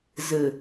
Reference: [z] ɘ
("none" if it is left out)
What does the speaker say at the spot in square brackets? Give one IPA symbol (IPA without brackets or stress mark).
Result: z